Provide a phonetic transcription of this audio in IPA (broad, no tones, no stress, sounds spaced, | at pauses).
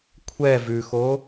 kʷʰ ɛ v ʉ x o